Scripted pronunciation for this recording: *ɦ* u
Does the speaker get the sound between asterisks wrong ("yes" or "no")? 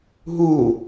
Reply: no